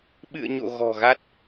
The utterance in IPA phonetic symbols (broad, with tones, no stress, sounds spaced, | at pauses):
ɓ ɨ̰˧˨ ə̯ ɲ o̰˧˨ ɣ ɔ̤˨˩ ɣ a˦˥ t̚